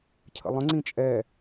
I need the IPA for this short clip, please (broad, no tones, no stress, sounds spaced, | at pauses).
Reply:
cʰ ə̰ lˠ ə̃ ŋ͡ǀ ĩ t͡ʃʼ ɛ